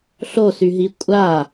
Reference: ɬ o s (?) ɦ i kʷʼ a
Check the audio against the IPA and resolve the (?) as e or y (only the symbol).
y